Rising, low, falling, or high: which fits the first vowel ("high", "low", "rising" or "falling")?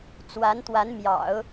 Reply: rising